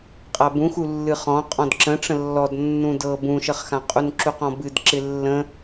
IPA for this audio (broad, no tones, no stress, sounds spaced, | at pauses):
qʼ a b ũ x u lː ɨ χ ɔ̃ qʼ ɔ̃ d ǁ ə̃ ʈ͡ʂ ə̃ lː ɔ d nː ũ d ɤ b ũ ʃ ə χ x ã qʼ u n ǁ u q ɔ̃ b ɨ d ǁ ɪ lː ə̃